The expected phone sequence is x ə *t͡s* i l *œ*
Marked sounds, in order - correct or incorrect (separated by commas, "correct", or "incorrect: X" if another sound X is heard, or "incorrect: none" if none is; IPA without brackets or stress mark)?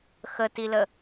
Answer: incorrect: t, incorrect: ə